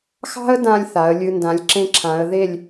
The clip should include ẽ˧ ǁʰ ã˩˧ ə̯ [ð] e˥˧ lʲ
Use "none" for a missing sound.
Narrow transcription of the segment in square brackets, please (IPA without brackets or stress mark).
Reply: ð